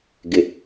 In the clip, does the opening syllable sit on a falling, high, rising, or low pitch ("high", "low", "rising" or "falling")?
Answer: low